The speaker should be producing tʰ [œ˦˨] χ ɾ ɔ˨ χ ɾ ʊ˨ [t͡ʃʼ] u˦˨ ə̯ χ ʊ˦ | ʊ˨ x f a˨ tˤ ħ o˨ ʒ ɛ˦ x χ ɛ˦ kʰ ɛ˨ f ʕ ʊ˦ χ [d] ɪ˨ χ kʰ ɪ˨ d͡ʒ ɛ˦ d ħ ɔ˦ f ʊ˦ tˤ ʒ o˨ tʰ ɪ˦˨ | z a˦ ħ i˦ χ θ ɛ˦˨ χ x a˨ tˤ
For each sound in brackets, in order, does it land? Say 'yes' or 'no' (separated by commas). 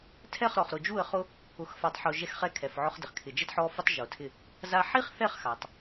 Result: no, no, yes